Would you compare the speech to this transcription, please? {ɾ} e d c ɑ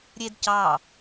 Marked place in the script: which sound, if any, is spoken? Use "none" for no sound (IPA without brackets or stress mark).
ɾʲ